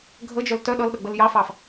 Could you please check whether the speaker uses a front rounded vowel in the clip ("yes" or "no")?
yes